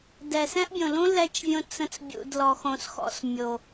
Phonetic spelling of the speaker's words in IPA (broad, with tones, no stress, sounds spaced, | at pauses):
d ɛ˨ s ɛ̃˦ ʔ bʲ õ˨ l ũ˦ l ɛ˧ t͡ʃ vʲ õ˧ t͡s ə̃˧ t͡s bʲ ṵ˨ d l ɔ˨ x õ˨ s x ɔ̰˨ s mʲ o˨